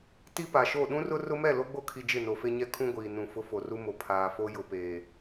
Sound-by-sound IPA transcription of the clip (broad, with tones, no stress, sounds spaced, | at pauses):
t i˦ p a˨ ʃ o˦˨ ɗ ũ˦ r ʊ˦ r ʊ˦ m ɛ˦˨ l o˦ ɡ͡b o˦ kʰ i˨ d͡ʒ ɪ˦˨ n o˨ f e˦ ɲ ɛ˦ kʰ ũ˦ ɡʷ iː˨ n ũ˨ f ʊ˦ f o˨ r u˦ m o˨ pʰ aː˨ f o˦ j ʊ˨ p eː˨